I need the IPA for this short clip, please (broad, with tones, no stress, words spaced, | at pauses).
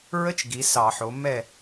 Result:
ɹə˥t͡ʃ ɡi˩˥sɑ˧˩˧ħo˩˥ mɛ˥˨